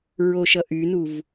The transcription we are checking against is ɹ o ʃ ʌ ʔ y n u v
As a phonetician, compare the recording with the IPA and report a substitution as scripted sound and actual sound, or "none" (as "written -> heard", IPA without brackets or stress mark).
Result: none